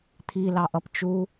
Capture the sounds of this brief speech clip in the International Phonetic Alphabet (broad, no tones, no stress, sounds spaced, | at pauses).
t̪ʰ i l ɑ ʔ ʌ p t͡ʃ u